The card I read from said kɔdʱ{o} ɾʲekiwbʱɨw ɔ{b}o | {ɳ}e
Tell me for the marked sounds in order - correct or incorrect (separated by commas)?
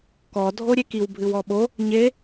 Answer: correct, incorrect, incorrect